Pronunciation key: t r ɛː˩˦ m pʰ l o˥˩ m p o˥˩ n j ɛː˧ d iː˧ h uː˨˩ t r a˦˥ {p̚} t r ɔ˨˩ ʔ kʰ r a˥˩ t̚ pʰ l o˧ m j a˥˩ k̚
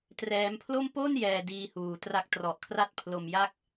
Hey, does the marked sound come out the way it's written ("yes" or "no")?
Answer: no